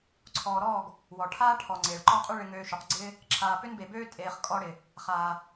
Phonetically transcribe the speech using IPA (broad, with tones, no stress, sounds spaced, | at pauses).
ǀʰ ɔː˨ ɾ ɔː˦˨ ɡ | w ɔ˨ ʈʰ aː˦ ʈʰ ɔ˨ ŋ͡ǀ eː˨ ɭ ǃ ɔː˦ qʼ y˦ ɭ ɪ˧ ŋ øː˧ ʃ y˨ q ɡ͡ǀ ɪː˦ | ǁʰ aː˨ p ʏ˦ n b e˨ b øː˦ tʼ eː˨ χ kʼ ɔ˦ ɽ ɪ˨ | χ aː˨